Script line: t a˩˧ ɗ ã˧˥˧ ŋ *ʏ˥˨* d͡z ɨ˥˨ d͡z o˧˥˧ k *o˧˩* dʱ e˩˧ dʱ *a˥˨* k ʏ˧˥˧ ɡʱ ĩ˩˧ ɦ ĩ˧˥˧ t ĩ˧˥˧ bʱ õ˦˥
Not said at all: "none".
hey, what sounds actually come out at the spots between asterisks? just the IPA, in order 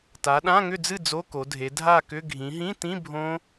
ʏ˥˨, o˩˧, a˥˨

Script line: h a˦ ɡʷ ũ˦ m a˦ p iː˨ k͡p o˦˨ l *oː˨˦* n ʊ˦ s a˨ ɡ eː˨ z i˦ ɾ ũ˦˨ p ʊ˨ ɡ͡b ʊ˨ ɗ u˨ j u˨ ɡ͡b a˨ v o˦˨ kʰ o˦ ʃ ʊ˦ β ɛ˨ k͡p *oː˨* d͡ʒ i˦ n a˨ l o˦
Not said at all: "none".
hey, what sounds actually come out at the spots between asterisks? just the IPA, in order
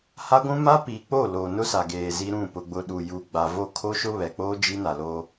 oː˨, oː˦

